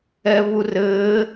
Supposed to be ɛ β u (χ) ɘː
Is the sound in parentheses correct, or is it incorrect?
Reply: incorrect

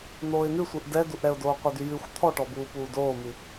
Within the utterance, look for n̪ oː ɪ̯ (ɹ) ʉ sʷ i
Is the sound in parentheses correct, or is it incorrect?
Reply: incorrect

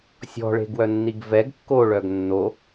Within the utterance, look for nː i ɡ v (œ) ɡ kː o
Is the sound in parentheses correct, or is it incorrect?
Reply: incorrect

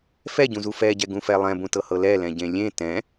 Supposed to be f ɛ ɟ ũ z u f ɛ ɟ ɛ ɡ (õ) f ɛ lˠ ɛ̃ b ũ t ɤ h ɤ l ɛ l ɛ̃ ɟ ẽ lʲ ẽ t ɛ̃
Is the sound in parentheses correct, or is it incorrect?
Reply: incorrect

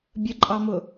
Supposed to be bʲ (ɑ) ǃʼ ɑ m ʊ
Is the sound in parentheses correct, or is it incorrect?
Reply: incorrect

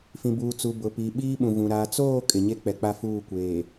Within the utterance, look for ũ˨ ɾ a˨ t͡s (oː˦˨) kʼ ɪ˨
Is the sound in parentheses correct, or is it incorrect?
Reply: correct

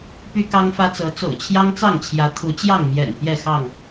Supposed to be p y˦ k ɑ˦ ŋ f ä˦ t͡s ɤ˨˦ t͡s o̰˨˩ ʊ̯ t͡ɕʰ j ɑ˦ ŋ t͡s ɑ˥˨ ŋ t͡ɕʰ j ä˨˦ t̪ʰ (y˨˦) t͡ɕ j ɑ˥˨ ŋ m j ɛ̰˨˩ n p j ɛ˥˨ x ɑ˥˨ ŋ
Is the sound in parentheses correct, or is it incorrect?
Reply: incorrect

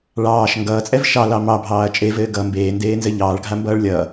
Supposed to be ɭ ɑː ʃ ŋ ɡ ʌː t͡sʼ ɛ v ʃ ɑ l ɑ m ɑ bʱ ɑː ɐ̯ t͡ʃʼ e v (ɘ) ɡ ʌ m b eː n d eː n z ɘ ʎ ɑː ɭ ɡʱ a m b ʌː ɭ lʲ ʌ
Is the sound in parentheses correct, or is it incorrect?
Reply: incorrect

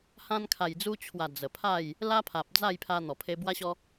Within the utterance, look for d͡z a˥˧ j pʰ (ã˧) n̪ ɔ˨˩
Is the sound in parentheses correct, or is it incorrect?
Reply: incorrect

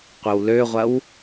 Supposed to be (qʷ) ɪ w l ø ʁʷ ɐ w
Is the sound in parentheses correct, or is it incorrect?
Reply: correct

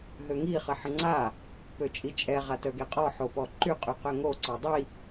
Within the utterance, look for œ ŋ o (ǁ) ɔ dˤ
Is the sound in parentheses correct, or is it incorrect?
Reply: incorrect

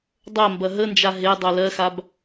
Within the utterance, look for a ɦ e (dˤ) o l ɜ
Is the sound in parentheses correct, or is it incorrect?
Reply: correct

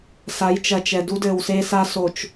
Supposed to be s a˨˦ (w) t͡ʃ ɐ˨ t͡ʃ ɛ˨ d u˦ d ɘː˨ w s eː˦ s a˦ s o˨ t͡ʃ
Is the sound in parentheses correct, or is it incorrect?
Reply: incorrect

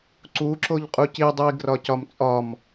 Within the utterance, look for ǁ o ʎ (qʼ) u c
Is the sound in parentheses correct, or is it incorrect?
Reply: correct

